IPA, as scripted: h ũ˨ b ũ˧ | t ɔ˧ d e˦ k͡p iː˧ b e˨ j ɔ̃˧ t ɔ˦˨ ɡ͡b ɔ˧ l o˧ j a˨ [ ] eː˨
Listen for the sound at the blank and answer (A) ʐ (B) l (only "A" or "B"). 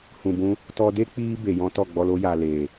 B